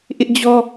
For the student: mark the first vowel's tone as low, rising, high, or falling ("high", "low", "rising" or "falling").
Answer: high